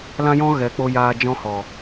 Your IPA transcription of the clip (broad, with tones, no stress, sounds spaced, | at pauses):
l ã˦ j ɔ̃˦ ɣ ɛ˨˦ k͡p o˧ j aː˧ d͡ʒ ɔ̃˧ h ɔ˨